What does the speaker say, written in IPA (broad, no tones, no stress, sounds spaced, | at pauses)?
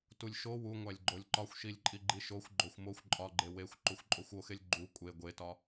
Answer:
t u lʲ ʃ o w u ŋʷ æ lʲ ɡ͡ǃ o lʲ ǃ ɒ xʷ ʃ i lʲ ǃʼ i ɡ͡ǃ i ʃ o xʷ ɡ͡ǃ o xʷ m o xʷ ǃʼ ɒ ɡ͡ǃ e w e xʷ ǃ u xʷ ǃʼ o xʷ o x e lʲ ɡ͡ǃ u kʷʼ e ɡʷ e t ɒ